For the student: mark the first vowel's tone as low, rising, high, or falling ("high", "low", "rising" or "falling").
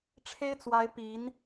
high